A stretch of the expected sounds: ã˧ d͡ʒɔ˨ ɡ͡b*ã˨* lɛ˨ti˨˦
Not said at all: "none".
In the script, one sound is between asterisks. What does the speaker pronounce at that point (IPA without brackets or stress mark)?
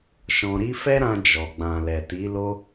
ã˨